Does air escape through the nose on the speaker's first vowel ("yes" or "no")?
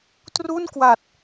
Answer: no